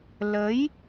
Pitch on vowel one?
rising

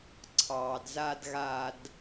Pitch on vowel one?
low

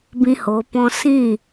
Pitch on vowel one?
high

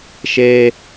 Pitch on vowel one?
high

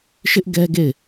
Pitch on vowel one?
high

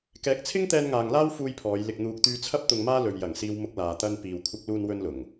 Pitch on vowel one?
rising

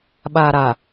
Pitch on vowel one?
low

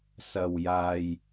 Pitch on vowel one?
low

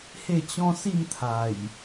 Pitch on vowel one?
falling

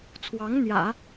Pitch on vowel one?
rising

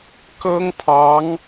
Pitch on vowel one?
high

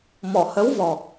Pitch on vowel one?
low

